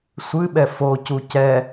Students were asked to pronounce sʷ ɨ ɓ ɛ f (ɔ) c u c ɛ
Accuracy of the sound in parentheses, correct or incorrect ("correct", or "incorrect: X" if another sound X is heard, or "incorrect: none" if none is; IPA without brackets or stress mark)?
incorrect: o